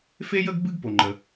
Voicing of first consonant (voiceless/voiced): voiceless